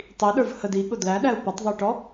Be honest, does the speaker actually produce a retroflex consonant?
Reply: yes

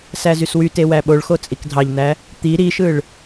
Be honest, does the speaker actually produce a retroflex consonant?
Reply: yes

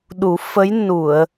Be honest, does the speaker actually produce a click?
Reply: no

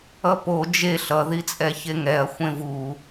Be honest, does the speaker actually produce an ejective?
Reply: yes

